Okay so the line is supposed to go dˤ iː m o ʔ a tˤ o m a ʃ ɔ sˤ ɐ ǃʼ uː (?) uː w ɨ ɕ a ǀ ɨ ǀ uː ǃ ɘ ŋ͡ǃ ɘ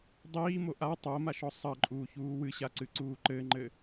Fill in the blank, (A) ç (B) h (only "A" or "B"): A